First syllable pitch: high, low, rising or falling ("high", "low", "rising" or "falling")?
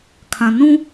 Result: low